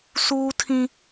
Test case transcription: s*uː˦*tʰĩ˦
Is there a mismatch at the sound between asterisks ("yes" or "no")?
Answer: no